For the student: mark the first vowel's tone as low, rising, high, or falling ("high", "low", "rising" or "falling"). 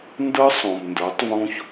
high